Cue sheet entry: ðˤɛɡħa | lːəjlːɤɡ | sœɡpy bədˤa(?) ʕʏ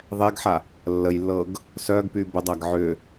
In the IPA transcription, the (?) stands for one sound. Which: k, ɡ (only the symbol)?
ɡ